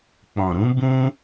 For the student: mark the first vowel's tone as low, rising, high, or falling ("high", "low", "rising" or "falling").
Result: low